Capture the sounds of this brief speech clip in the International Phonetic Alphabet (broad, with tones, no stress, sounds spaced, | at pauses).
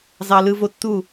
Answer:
z ɑ˧ l ɯ˧ v o˧ tː u˦˨